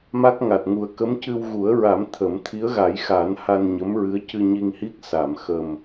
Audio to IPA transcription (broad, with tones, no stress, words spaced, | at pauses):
ma˦˥k̚ŋa˨˩t̚ŋu˨˩ə̯ kə˧˥mcɨ˧w ɣu˨˩˦ə̯ɹa˨˩˦m t̪ʰə˨˩˦m t̪ʰi˧˥ə̯ɣa˨˩˦jxa˨˩˦n ha˧nɲə˧˥m ɹɨ˧˥ə̯cɨ˧ɲi˧ŋhi˦˥k̚ sa˨˩˨mxə˨˩m